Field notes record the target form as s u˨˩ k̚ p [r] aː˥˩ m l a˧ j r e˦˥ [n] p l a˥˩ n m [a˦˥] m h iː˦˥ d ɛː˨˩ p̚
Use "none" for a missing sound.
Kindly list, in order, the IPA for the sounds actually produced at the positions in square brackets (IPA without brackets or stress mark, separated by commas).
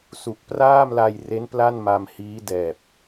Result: r, n, a˧